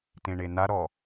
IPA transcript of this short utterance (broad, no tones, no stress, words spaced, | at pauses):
tẽɳenaɾɔ